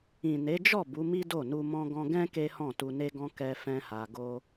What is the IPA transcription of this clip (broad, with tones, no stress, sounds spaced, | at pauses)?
ĩ˨ n e˨˦ d͡ʒ ɔ˦˨ b u˨˦ m i˦ d o˦˨ n u˧ m ɔ̃˦ ɡ ɔ̃˦ ɡ ɛ̃˦ k e˦ h ɔ̃˦˨ t u˧ n e˦ ɡ ɔ̃˦ k ɛ˦ f ɛ̃˦ h a˧ ɡ o˦